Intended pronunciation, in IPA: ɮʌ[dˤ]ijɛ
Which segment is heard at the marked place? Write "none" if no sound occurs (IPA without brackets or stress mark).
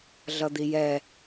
d̪